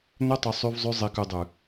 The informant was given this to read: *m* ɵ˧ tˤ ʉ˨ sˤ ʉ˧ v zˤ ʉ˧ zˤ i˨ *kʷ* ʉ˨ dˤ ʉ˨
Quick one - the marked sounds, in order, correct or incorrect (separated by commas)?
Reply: incorrect, incorrect